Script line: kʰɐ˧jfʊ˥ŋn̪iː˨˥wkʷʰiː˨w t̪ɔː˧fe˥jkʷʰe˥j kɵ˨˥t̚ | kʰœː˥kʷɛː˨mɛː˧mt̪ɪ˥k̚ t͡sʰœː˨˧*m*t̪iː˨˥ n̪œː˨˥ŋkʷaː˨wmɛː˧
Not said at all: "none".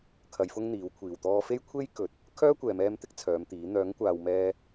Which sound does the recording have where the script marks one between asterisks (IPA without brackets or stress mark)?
m